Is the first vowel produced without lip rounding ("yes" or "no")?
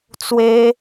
yes